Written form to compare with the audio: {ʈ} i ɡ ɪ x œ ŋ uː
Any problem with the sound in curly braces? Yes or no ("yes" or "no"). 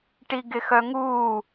no